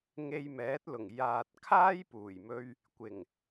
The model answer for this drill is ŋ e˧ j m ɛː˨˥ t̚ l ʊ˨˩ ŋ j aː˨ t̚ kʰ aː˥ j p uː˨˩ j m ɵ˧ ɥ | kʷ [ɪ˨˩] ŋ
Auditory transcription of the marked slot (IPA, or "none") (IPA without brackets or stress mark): ɪ˨˩